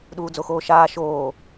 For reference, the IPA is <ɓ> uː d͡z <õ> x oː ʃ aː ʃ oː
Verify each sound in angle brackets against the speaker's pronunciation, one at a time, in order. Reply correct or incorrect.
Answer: incorrect: ɗ, incorrect: o

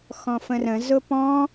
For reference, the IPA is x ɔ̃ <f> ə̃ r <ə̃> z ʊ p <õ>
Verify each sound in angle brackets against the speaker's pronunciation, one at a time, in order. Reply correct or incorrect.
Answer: correct, correct, incorrect: ɔ̃

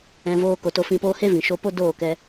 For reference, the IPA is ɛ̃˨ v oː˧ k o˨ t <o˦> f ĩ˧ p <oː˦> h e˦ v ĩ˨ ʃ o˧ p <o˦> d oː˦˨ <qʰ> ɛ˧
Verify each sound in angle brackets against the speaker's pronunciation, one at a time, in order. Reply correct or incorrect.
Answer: incorrect: o˧, correct, correct, incorrect: k

